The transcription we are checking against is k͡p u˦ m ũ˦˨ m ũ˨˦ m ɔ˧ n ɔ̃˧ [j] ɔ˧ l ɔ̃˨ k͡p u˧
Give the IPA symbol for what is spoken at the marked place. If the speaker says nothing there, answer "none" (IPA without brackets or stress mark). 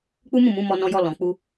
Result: j